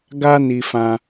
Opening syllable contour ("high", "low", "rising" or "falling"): high